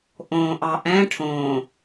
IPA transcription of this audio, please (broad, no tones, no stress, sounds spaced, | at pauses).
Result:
ʔ õː ʔ ɑ ʔ ɛ̃ ʈʰ õː